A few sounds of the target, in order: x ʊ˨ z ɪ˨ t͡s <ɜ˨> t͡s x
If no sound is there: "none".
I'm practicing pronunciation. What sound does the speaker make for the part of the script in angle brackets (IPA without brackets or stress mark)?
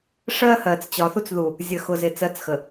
ɜ˦˨